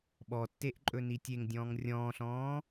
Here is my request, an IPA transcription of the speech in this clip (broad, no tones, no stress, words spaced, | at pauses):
ɓɔtːeʔ ǃʼɵnitʲeŋdʲɔ̃ːŋ rʲɔ̃ːɬɔ̃ː